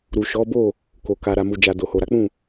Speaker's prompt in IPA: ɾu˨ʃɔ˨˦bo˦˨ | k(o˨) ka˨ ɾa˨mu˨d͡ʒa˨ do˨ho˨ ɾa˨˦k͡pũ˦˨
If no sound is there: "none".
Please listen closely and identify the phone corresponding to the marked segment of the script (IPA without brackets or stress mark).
o˨